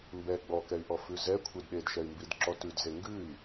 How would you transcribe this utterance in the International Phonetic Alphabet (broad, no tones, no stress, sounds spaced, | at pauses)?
m b ɛ ɡ͡b ɔ k ɛ y̯ ʔ ɔ f ʉ z ɛ kʷʰ e d ɗ e d ʃ ɛ y̯ m b i d ǁ ɔ t ʉ d z e ŋ ɡ ʉ i̯